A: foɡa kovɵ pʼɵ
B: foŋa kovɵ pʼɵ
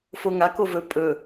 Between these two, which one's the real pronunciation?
B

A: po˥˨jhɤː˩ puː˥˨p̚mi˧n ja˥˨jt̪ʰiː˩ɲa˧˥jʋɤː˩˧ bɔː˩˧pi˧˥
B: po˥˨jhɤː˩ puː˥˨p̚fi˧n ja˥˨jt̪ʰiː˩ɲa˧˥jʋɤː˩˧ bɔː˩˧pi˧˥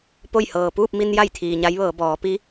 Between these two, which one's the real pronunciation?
A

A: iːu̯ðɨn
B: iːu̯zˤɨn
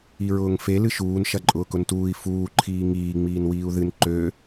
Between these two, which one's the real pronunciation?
A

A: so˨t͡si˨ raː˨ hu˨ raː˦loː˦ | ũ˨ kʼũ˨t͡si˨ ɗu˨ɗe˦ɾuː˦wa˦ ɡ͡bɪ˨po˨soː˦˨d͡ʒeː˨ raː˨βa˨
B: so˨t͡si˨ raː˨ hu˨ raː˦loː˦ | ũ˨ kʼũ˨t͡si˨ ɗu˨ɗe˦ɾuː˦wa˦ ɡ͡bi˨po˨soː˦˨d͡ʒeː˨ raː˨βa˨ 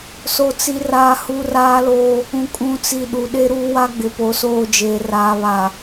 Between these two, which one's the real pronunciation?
A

